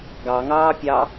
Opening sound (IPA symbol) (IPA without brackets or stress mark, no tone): ɡ